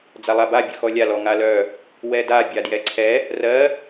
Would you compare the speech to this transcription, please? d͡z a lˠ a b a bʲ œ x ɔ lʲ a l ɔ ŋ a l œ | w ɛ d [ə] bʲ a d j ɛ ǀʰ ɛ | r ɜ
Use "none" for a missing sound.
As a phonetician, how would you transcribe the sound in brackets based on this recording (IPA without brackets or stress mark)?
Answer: a